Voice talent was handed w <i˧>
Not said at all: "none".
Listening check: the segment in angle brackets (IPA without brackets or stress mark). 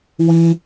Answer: ĩ˧